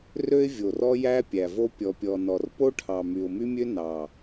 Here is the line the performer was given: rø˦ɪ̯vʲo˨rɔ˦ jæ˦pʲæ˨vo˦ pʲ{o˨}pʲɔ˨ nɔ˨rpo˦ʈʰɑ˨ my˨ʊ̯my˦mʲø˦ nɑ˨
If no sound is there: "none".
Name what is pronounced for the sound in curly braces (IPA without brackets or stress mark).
ɔ˨